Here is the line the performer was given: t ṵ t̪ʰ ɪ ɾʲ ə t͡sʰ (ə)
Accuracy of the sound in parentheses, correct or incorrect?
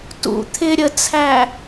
incorrect